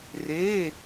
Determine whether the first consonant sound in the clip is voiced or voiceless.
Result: voiced